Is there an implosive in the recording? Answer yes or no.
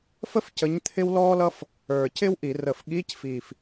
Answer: yes